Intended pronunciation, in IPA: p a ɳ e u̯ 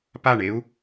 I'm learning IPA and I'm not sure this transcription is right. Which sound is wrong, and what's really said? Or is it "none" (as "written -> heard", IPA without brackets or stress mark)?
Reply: none